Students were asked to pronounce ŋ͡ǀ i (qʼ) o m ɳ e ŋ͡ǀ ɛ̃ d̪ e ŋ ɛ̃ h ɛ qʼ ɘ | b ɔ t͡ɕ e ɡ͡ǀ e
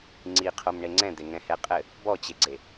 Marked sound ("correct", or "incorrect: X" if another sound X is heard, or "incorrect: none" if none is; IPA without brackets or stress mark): incorrect: qʰ